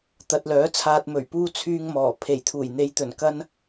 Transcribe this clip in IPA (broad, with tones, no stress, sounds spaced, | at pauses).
t̪ ɐ˨ t̚ l œː˨˥ t͡sʰ aː˨ t̚ m ɵ˨˩ ɥ p uː˧ t͡sʰ yː˧ ŋ m ɔː˨˩ pʰ e˨˩ j t̪ʰ uː˨˩ j n̪ e˨˧ j t̪ ɵ˨˩ n k ɐ˥ n